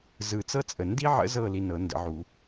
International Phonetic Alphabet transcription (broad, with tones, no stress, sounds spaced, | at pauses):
z ɯ˨ t͡s ɤ˥ t͡sʼ ə˨ n d i˥ ʕ ə̰˧˥ z ɤ˦˨ l i˧˥˧ n ɤ˨˩˦ n d ə̰˨˩˦ ʕ u˨˩˦